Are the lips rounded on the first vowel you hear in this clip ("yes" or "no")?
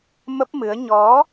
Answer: no